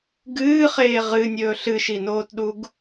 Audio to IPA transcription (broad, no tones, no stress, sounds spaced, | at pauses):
ɡ ɨː χ eː ʁ ɨ nʲ ɵː ɬ ɨ ʃ i n oː t ɗ u ɡ